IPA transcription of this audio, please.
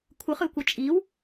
kʷʰ ɯ χ ɯ kʷ ʌ t͡ʃʼ i w

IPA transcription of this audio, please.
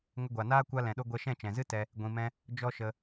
ŋ ə˧ ɡʷ a˨ n aː˦ kʷ a˦ l ɛ̃˨ ɗ o˦ ɡʷ ɛ˧ ʃ ɛ̃˦˨ t͡ʃ ɛ̃˨ z ɨ˦ t ɛ˧ | ɡʷ ĩ˨ m ɛ̃˧ | d͡ʒ ɔ˦ ʃ ə˧

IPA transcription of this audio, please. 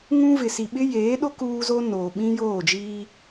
ŋ ũ˦ v ɪ˨ s i˨ ɓ ɪ˦ j eː˨˦ ɗ o˦ k uː˦ z o˦ n oː˨ ɓ ĩ˦ j oː˦˨ d͡ʒ iː˦

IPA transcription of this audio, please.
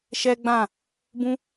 ʃ ɛ˦ ɡ͡b ã˦˨ | b ũ˦

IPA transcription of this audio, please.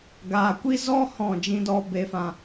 ɡ aː˨ kʷ i˦ z ɔ˦ h ɔ̃˦˨ d͡ʒ ĩ˧ d ɔ˧ b e˧ f ã˧

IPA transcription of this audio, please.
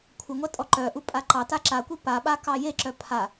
kʷʰ ə ŋʷ a tʼ ɔ ǃ œ ʔ u pʼ a ǃ ɑ t a ǁ a kʷ i p a ɓ a k ɑ j e ǁ œ pʰ a

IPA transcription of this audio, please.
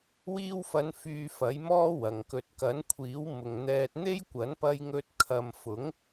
w iː˧ w f ɐ˨˧ n f yː˧ f ɐ˨˥ j m ɔː˥ w ɐ˨ ŋ k ɵ˧ t̚ k ɐ˨˥ n kʷʰ iː˨˥ w m ʊ˨ ŋ n̪ ɛː˧ t̚ n̪ e˥ j kʷ ɐ˨˥ n p ɐ˧ j ŋ ɵ˧ t̚ kʰ ɐ˧ m f ʊ˨˥ ŋ

